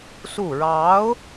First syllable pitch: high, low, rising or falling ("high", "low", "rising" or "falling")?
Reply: falling